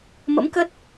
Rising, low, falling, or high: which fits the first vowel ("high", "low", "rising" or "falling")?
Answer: rising